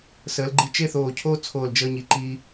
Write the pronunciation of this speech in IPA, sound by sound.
s əː˩˧ l ɡ͡ǃ i˧ t͡ʃ e˥˧ θ oː˧˩ cʰ oː˥ t͡sʰ oː˧˩ l d͡ʒ əː˧ ɲ i˩˧ ǃ iː˧

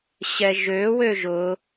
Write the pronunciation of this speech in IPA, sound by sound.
ɕ ɛ ʒ ø w ø ʒ ʊ

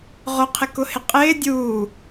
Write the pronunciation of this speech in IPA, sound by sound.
ʁ ʊ qʰ ɪ k ʊ h ɪ qʼ ɪː dʲ uː

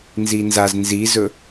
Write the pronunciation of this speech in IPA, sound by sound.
n z i n z a z n z i z ɵ

